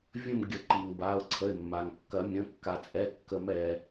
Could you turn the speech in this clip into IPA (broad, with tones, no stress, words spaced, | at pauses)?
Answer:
vʲə̃˥˧mɡʲə˨˩˦ǃi˩ŋ ba˩˧˩ʊ̯ǀʰə˩˧˩ɪ̯ mːa˩ŋkːɐ˨˩˦ mʲə̃˩˧˩kːa˩t͡sʼɛ˩˧˩ kːə˨˩˦mɛ˩